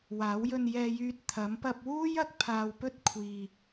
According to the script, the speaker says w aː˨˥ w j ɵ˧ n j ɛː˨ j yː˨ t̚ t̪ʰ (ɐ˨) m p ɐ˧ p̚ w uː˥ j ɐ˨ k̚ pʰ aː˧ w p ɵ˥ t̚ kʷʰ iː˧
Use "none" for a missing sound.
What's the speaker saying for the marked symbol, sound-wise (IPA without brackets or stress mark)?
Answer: ɐ˨˥